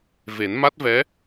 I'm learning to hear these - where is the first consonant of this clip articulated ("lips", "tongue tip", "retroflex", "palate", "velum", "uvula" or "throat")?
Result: lips